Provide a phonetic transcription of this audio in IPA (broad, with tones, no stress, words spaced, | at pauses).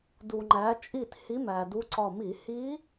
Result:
du˩ŋ͡ǃæ˩˧ t͡ʃʼi˧˩t hi˧˥mæ˩du˧˥ǀɒ˧˩ mi˧˩˧hi˧˥